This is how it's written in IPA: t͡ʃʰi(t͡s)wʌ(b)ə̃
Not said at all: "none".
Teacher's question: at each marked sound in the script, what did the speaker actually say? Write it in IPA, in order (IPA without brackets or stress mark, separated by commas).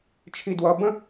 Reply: d, b